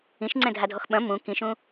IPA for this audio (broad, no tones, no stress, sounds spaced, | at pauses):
ĩ ʃ ŋ͡ǀ ɛ̃ dʱ a dʱ ɔ x ɓ ɐ̃ m ũ k ĩ ʃ ũ